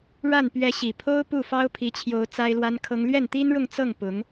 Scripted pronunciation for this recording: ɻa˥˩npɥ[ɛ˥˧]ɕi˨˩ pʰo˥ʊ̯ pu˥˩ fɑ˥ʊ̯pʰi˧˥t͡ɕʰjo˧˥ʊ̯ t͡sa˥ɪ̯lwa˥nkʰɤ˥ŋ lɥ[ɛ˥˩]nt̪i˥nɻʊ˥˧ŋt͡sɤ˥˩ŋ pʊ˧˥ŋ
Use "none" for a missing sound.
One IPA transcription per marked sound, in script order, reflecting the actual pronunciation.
ɛ˧˥, ɛ˥˩

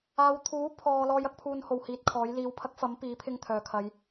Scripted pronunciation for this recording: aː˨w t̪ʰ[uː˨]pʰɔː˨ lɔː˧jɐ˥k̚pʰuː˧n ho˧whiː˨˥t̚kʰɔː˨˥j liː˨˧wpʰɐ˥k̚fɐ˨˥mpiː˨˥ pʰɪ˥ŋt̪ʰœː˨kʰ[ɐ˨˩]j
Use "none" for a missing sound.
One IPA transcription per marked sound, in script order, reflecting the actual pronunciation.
uː˨˥, ɐ˨˧

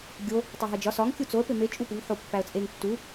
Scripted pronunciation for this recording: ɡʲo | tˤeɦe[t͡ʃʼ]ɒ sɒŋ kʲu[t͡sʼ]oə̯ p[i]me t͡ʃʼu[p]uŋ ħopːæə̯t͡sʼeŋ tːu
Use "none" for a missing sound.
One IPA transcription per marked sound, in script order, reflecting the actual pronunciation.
d͡ʒ, t͡s, e, p

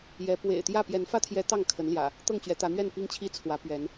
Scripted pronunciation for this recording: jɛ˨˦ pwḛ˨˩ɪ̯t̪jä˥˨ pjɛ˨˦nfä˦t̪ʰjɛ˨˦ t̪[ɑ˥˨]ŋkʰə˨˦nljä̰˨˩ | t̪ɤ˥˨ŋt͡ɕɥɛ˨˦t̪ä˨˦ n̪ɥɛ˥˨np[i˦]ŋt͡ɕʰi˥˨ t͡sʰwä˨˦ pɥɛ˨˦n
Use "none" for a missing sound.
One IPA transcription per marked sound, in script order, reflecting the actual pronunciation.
ɑ˥˨, i˦

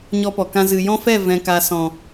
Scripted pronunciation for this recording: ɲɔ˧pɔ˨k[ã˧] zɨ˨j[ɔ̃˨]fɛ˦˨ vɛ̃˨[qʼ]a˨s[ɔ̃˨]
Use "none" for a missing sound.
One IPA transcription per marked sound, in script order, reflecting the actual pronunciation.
ã˧, ɔ̃˦, k, ɔ̃˨

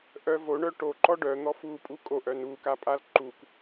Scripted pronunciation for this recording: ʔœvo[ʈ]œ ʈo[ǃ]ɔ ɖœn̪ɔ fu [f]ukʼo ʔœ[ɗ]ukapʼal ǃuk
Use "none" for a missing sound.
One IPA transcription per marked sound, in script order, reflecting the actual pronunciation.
ɳ, ǃ, pʼ, n

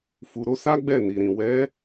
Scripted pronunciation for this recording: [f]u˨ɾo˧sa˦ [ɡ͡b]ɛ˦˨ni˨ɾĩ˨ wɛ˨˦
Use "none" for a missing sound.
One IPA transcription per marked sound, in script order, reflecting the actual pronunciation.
f, ɡ͡b

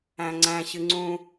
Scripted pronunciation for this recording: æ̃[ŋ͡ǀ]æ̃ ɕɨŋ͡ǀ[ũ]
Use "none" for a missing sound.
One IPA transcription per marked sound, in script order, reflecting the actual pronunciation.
ŋ͡ǀ, ũ

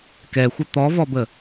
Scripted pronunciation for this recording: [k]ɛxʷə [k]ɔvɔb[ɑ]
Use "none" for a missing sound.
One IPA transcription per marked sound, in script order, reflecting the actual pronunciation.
k, t̪, ə

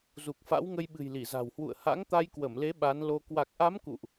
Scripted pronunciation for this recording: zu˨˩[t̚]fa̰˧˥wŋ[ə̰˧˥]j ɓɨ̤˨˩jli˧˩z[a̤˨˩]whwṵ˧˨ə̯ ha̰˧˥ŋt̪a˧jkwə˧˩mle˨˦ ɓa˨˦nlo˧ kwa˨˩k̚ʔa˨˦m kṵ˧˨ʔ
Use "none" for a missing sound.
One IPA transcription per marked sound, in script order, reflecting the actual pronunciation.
k̚, ə˧, a̤˨˩

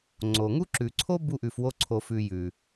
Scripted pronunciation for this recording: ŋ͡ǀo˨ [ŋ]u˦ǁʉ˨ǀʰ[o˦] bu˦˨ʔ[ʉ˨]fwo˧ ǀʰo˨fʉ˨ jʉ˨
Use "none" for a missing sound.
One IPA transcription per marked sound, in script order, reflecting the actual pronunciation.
ŋ, o˦, ʉ˨

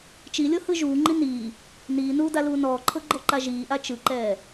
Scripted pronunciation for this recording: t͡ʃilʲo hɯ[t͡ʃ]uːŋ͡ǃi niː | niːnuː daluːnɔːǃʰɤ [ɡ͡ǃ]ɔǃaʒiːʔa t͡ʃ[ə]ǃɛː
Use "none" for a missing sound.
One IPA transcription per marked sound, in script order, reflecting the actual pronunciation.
ʒ, ɡ͡ǃ, ɯ

